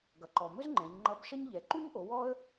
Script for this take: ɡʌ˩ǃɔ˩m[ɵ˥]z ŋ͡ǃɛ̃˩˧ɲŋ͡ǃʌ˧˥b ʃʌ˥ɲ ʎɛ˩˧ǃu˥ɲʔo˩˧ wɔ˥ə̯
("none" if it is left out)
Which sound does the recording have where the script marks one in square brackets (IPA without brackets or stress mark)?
ɵ˥